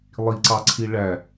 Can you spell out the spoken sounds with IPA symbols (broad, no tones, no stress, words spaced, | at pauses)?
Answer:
lˠiǀɑǀʰi ɭæ